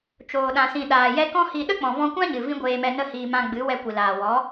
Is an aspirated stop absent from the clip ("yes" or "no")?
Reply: yes